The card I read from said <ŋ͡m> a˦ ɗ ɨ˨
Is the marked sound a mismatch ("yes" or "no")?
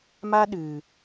yes